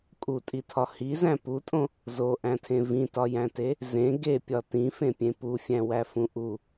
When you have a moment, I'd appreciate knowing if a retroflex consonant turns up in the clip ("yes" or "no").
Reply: no